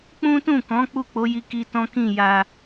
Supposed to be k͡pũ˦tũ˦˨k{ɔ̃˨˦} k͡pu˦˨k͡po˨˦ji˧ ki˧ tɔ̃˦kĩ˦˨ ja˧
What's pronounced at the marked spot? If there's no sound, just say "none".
ɔ̃˨˦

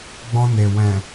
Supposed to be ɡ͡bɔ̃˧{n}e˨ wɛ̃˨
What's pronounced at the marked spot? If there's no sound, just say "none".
n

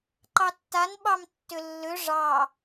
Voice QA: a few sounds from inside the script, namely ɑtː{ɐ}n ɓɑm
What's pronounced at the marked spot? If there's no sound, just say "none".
a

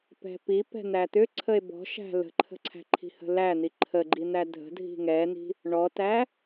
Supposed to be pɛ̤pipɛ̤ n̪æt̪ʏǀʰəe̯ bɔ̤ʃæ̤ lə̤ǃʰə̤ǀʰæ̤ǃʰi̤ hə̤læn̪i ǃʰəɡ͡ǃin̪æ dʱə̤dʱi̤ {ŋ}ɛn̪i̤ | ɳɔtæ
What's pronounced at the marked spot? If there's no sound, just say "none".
ŋ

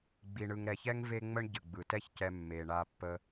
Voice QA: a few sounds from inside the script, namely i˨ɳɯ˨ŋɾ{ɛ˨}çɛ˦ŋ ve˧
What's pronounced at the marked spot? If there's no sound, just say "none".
ɛ˨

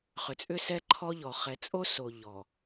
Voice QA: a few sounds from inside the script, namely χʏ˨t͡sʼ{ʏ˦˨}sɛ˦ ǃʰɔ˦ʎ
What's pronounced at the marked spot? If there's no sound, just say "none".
ʏ˦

